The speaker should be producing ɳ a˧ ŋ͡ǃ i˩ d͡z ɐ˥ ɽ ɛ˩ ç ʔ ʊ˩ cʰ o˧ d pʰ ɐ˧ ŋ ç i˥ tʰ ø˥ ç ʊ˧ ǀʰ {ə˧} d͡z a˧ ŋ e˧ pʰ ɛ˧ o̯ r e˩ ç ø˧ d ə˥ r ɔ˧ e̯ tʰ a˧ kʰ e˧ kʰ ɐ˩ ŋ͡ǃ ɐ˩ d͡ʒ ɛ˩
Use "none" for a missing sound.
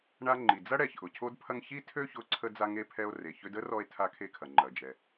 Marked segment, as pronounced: ə˧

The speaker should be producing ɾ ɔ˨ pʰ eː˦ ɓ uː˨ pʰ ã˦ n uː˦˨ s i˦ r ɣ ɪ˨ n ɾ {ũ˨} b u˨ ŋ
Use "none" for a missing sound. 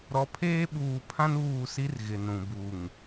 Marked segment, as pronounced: ũ˨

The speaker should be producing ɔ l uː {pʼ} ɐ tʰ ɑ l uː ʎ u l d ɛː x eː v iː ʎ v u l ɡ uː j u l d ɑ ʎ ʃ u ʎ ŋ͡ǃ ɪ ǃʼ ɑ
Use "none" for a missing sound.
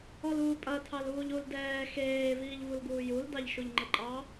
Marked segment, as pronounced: pʼ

